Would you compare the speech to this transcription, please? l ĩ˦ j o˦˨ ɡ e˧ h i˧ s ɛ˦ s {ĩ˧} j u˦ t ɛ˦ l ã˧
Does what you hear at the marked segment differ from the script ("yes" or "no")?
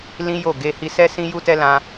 yes